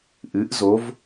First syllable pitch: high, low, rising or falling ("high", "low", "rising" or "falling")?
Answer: rising